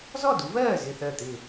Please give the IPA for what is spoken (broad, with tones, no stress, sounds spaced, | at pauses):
z ɔ˥˩ d u˨˦ v ɜː˥˩ z ɪ˥˩ θ ɜ˥˩ t̪ ɪ˥˩